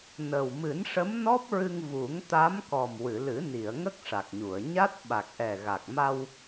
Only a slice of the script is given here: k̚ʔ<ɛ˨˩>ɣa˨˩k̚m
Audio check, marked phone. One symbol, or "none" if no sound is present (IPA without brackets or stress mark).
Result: ɛ˨˩